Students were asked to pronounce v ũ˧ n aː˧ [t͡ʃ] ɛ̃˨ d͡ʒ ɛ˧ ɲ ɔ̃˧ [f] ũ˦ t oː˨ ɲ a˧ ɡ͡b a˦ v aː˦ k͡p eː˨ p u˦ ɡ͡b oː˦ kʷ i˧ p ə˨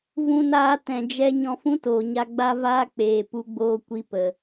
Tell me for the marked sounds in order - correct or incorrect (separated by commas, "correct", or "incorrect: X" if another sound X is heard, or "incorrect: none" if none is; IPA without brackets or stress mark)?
incorrect: t, correct